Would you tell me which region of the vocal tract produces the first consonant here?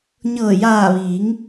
palate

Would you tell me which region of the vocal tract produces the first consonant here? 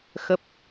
velum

